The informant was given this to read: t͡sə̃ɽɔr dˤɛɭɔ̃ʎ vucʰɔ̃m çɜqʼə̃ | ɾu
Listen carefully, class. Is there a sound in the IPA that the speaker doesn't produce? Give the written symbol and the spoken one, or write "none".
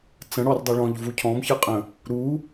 none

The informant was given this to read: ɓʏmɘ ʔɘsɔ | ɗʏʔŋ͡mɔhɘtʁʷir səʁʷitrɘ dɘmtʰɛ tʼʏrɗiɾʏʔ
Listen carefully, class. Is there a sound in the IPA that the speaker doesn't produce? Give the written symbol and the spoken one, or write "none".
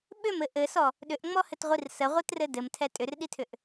ɾ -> tʰ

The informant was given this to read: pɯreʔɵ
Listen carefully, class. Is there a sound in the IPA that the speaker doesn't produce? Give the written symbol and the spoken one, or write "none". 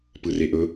none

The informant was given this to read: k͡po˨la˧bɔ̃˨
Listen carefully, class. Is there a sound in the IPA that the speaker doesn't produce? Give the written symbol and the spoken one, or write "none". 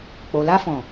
b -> f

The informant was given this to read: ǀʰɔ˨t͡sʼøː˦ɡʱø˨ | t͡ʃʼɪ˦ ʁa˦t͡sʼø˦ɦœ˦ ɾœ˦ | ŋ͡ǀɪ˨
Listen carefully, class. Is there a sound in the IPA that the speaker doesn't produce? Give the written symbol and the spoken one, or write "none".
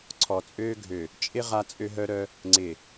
none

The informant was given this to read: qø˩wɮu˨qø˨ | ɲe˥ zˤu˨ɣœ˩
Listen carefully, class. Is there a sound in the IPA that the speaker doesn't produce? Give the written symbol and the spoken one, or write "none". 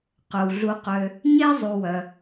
ɣ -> w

